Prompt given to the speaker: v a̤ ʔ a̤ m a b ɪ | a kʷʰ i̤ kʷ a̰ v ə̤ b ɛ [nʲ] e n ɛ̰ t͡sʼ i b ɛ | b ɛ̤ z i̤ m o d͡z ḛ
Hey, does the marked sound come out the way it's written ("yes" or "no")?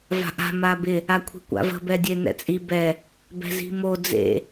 no